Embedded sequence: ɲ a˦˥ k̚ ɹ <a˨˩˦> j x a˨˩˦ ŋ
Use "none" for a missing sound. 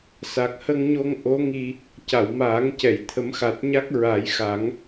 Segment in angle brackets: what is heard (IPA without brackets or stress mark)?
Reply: a˨˩˦